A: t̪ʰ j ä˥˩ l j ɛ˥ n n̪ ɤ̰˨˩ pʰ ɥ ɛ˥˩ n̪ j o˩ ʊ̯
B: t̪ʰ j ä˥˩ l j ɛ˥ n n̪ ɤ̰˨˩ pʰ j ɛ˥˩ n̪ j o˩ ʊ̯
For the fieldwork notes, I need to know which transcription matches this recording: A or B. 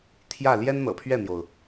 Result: A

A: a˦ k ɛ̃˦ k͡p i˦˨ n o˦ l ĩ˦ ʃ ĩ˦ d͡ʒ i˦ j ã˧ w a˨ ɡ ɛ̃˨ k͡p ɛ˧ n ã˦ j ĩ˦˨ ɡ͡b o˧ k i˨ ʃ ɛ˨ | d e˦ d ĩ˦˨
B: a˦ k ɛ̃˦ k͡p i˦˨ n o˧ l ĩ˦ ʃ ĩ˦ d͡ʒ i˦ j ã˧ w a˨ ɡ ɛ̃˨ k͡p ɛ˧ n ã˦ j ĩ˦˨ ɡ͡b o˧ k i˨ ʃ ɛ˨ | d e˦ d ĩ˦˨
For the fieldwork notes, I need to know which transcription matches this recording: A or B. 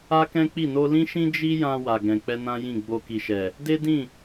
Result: B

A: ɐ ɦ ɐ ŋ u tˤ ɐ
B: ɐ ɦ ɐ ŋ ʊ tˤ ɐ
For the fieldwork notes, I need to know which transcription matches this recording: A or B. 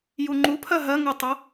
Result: A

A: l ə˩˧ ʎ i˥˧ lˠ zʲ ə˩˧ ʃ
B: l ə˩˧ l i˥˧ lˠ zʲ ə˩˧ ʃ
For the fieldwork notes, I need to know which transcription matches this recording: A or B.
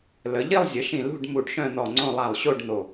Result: A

